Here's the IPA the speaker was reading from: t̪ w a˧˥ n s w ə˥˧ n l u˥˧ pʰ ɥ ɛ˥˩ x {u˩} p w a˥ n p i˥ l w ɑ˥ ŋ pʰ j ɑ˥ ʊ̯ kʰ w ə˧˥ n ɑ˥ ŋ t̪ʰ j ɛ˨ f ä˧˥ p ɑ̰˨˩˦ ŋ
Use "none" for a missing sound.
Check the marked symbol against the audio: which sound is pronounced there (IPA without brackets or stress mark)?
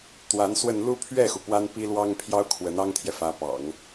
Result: u˩